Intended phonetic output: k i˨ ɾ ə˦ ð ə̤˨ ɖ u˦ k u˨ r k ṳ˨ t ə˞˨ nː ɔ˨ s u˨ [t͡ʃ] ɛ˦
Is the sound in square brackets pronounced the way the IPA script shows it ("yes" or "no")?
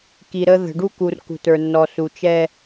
yes